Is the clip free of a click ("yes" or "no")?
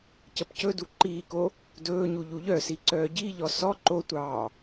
no